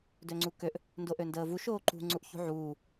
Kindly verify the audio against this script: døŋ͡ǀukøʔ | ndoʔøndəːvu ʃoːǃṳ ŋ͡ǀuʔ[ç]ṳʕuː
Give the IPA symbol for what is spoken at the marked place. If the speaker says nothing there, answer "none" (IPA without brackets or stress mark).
ç